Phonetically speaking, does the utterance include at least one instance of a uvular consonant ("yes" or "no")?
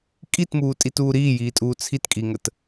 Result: no